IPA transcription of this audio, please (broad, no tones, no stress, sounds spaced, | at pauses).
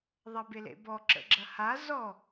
ðˤ ɐ b e l ḛ b ɔ ǁ ə̰ ɡ͡ǁ ɐ h a z ɔ